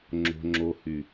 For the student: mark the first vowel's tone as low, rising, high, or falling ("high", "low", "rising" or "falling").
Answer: low